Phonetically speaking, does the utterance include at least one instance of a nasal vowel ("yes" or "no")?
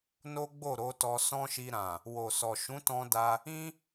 yes